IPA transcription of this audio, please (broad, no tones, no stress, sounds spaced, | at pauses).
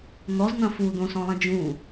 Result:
n̪ ɔ z n̪ ɐ̃ f u d̪ õ s ɔ̃ lˠ ɐ̃ d͡ʒ ũ